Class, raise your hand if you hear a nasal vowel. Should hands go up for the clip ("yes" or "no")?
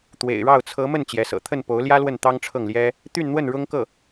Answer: no